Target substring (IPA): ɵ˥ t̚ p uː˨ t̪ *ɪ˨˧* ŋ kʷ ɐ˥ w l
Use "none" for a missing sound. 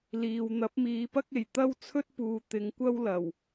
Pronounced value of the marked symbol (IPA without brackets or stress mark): ɪ˨˧